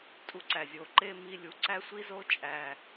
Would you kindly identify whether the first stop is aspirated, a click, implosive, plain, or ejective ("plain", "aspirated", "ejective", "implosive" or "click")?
ejective